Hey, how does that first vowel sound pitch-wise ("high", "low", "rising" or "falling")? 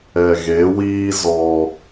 low